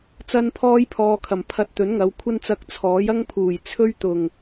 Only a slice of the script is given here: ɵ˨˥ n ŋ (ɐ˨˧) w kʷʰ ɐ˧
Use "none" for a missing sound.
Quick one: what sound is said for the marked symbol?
ɐ˨˧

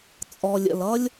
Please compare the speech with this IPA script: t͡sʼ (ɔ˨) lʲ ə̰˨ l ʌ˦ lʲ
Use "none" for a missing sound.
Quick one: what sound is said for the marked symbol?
ɔ˨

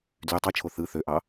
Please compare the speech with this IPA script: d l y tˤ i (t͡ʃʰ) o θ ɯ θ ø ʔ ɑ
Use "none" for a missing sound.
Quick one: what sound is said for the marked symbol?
t͡ʃʰ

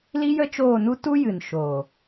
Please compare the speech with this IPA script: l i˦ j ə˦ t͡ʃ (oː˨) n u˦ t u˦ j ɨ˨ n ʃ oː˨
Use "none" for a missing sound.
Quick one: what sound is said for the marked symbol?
oː˦˨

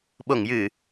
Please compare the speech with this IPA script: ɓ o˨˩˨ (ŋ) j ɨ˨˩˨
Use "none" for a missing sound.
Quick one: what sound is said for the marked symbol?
ŋ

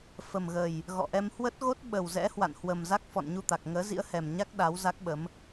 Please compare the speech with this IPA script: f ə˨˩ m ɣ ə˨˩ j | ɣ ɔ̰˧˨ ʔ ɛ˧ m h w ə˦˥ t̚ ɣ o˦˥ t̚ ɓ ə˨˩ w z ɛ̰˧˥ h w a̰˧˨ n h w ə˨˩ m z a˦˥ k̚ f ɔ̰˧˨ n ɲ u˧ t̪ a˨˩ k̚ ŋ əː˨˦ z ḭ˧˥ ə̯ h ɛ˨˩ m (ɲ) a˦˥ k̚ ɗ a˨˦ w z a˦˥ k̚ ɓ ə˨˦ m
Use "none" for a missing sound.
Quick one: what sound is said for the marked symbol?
ɲ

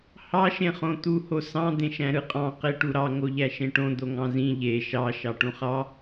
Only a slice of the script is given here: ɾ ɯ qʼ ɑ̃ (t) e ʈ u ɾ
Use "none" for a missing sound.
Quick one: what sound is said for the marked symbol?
q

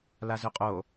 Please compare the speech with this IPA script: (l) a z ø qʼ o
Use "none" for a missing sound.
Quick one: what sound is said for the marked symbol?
l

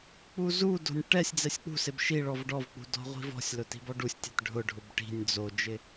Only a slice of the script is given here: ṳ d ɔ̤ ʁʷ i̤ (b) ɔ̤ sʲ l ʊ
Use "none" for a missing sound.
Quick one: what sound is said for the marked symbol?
v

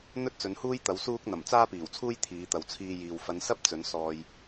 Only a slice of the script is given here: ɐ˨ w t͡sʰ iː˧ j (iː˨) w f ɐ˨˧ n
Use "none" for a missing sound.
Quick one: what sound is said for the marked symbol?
iː˨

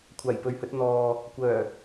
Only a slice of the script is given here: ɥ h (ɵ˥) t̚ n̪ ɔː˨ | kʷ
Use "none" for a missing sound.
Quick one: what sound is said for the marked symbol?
ɵ˧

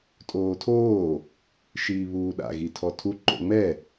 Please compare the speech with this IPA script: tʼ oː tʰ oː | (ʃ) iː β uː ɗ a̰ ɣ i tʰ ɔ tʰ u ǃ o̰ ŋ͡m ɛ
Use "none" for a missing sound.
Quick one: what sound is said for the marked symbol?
ʃ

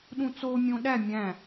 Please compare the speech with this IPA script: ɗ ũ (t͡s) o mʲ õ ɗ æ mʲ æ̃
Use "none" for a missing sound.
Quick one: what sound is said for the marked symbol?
t͡s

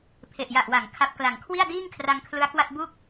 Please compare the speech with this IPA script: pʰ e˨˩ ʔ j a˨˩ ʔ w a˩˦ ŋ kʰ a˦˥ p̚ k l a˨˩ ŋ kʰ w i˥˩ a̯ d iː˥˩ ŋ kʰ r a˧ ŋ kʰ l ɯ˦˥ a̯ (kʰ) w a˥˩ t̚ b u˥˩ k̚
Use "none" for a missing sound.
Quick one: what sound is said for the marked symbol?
k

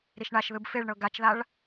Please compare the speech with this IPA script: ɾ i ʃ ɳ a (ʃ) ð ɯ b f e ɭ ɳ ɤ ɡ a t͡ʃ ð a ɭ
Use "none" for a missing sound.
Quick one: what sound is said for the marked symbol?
ʃ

